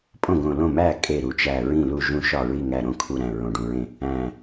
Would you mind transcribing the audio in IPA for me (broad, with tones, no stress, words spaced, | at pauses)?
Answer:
pʼõ˥˩ɡõ˧˩ lõ˥˩mæ˥˩ kʼe˧˩ ɾu˧˩t͡ʃæ˧˩ɹĩ˥˩lu˥˩ ʒũ˥˩ʃɒ˥˩ɹi˥˩ŋæ˧˩ ɾõ˥˩kʰu˧˩ɾæ̃˧˩ ɹõ˧˩ɖũ˧˩ɹẽ˥˩ | æ̃˧˩